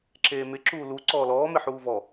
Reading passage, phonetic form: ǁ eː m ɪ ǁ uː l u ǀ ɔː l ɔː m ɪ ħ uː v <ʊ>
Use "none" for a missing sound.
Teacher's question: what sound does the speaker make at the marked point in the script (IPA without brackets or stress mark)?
ɔ